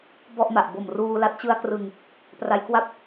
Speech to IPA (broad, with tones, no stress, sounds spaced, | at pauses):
b ɔ˥˩ ʔ m a˨˩ ʔ b o˨˩ m r uː˧ l a˦˥ t̚ t͡ɕ ɯ˧ a̯ k r ɯ˨˩ ŋ | p r a˧ j k w a˥˩ p̚